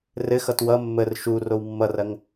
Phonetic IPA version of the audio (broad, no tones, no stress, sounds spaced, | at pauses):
r ɘ x ʌ t w ʌ mː ə r ʃ u r o w mː ʌ r ɐ ŋ